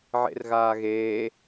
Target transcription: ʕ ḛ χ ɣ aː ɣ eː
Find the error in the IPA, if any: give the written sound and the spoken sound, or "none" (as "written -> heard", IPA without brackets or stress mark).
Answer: χ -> r